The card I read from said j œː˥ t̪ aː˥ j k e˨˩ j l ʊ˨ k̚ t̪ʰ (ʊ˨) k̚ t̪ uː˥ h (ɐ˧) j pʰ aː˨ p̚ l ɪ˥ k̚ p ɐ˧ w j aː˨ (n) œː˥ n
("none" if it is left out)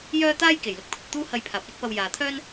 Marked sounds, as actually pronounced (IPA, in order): ʊ˨, ɐ˧, t̪ʰ

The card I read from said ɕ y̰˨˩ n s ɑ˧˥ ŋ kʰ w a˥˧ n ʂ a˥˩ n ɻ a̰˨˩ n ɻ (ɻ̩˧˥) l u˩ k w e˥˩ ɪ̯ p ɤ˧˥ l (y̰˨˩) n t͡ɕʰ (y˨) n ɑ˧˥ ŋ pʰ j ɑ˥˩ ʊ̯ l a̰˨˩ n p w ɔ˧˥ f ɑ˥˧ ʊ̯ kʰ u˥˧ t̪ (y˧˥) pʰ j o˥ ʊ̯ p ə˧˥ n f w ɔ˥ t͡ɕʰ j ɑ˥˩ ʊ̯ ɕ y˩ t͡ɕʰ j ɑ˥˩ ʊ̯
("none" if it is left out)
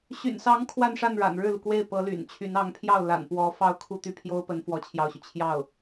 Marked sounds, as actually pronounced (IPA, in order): ɻ̩˥˩, y̰˨˩, y˧˥, y˥˩

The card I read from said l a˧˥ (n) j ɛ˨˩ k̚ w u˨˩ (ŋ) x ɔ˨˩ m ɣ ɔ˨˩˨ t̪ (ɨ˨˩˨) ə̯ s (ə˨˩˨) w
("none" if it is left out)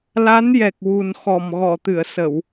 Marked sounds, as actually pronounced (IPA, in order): n, n, ɨ˨˩˨, ə˨˩˨

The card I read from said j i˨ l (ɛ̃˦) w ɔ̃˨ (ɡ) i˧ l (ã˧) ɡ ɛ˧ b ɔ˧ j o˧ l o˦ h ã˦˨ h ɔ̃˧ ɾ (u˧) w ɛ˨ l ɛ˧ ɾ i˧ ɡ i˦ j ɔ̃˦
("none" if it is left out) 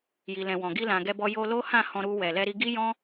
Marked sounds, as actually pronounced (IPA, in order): ɛ̃˨, ɡ, ã˨, u˧

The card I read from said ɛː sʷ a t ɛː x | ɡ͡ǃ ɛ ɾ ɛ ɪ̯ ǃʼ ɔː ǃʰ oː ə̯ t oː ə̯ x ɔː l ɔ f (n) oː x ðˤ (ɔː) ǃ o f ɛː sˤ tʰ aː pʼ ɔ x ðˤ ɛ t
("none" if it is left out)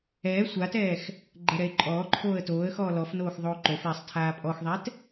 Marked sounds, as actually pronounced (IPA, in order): n, oː

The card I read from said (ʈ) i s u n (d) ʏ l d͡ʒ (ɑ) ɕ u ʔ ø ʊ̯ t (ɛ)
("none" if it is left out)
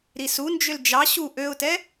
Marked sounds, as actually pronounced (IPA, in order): ɾ, d͡ʒ, ɑ, ɛ

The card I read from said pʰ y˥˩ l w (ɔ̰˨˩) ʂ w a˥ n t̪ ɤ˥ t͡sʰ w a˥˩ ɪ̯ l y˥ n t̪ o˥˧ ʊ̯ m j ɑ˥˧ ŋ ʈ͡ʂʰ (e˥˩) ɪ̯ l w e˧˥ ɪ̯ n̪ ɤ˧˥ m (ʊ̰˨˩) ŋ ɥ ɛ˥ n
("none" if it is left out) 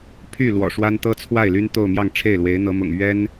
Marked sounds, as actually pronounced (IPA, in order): ɔ̰˨˩, e˥˩, ʊ̰˨˩

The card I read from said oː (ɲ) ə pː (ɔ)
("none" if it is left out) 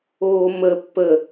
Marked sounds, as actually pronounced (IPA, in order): m, ə

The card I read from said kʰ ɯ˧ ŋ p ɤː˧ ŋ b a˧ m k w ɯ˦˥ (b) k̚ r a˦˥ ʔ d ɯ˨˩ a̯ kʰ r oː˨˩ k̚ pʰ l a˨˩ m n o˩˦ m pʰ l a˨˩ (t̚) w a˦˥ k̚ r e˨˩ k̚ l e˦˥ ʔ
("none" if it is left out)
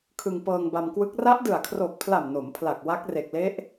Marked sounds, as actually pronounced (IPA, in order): none, k̚

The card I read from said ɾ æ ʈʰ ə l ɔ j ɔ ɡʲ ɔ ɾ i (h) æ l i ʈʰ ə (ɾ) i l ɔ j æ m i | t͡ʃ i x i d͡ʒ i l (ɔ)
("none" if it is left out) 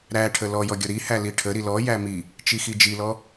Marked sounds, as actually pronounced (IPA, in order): h, ɾ, ɔ

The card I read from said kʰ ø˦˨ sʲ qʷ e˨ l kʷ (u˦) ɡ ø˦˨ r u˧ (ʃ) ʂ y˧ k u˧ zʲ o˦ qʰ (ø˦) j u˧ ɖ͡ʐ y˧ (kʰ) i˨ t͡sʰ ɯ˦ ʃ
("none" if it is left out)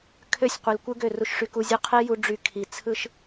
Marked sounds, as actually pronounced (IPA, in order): ɯ˦, ʃ, e˦, kʰ

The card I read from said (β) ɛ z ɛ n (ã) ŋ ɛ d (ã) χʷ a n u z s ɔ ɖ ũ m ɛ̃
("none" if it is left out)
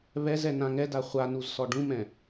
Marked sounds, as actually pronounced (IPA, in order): β, ã, a

